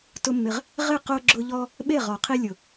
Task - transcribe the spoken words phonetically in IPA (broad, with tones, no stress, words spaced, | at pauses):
tʊ˦mːɪ˧ʁ | ʁɪ˦˨qo˧ɡ͡ǁʊ˧ʎɔ˧ | ɓe˦˨ʁɔ˨ qʰi˧lʲʊ˨